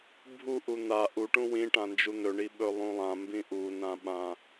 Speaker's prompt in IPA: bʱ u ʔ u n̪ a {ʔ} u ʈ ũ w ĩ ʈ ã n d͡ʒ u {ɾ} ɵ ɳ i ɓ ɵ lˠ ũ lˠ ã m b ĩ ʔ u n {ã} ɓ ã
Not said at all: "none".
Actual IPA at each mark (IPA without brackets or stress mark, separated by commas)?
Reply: ʔ, n̪, ã